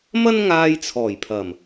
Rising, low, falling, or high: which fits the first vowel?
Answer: high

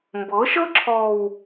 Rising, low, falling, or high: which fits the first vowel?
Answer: rising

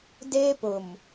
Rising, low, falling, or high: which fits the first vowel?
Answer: high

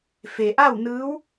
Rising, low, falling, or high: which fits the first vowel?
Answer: low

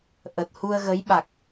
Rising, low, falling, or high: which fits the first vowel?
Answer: low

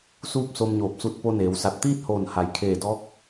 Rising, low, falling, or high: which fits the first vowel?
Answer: falling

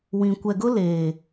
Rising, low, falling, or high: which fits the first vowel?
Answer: low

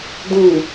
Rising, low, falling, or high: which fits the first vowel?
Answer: low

